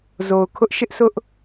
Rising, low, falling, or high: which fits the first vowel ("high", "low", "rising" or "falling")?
low